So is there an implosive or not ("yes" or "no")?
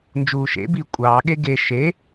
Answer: yes